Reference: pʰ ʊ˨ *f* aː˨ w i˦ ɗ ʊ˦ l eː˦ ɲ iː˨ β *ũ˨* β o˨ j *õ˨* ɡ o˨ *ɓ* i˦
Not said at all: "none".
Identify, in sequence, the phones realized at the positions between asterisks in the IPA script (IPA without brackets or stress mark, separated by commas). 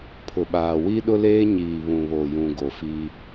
ɓ, ũ˨, ũ˨, f